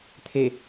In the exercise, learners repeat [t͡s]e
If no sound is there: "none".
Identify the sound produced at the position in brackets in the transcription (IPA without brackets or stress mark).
t̪ʰ